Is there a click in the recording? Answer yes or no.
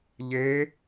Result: no